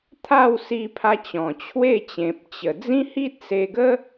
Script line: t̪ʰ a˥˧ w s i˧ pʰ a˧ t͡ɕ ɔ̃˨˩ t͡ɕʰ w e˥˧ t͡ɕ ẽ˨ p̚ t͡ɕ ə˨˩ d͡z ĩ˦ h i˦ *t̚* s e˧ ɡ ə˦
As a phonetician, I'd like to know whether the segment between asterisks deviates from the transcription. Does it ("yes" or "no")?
no